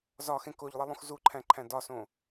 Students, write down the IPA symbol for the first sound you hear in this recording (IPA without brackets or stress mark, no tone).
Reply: z